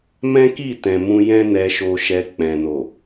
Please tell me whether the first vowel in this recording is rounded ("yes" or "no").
no